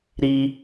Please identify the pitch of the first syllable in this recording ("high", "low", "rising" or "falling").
high